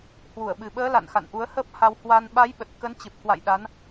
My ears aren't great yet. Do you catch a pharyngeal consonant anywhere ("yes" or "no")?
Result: no